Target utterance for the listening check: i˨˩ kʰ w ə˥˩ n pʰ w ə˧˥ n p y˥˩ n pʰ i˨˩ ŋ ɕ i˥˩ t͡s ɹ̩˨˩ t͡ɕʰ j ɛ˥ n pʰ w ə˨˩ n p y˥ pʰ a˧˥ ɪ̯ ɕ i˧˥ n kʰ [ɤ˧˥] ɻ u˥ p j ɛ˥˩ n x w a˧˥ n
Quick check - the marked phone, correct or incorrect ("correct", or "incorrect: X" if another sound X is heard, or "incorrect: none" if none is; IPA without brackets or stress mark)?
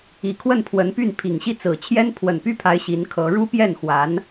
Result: correct